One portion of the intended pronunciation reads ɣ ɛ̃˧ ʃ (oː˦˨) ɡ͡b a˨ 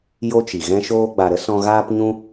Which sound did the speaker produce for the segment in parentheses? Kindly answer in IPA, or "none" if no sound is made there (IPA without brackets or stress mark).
oː˧